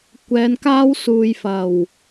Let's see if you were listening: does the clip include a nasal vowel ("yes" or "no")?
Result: no